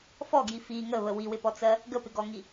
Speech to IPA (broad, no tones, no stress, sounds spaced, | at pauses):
f ɔ ɡ j i f i ŋ ə β ə w i w ɪ p ɔ t͡s ɜ | ɡ ə p ɪ ɡ ɔ ŋ i